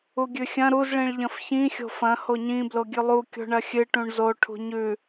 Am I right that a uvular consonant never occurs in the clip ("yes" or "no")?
yes